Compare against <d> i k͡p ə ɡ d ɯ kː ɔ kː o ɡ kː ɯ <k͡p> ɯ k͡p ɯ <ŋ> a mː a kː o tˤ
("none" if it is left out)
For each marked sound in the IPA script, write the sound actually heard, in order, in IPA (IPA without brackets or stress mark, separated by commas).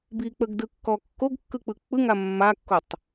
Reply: b, k͡p, ŋ